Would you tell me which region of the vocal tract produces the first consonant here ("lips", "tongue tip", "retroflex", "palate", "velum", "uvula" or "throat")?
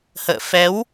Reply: throat